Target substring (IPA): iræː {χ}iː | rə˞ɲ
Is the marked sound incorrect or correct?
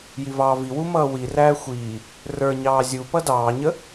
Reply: incorrect